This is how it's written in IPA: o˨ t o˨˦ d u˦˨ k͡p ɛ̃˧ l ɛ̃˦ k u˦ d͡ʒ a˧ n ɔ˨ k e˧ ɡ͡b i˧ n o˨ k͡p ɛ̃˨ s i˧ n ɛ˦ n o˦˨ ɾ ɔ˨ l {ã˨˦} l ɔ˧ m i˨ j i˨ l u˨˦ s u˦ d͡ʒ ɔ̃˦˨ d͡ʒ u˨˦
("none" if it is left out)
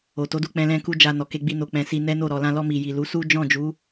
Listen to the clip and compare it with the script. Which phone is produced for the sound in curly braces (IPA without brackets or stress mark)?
ã˧